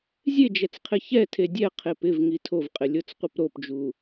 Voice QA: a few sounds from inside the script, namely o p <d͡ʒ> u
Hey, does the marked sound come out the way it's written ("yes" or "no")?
yes